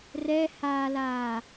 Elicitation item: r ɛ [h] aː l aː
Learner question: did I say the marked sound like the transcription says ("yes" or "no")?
yes